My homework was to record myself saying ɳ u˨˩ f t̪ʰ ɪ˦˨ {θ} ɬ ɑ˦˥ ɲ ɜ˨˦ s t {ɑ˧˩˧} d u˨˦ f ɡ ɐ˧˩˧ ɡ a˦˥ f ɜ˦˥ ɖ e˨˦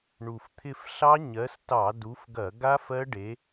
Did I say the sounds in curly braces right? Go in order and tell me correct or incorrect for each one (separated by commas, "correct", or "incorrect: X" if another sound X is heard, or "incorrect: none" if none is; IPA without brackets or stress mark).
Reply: incorrect: f, correct